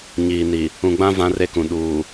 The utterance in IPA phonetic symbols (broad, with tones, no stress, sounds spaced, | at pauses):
ɲ iː˨ n i˨ | ũ˨ ɡ͡b ã˦ v ã˦ r e˦ k ũ˨ ɗ uː˨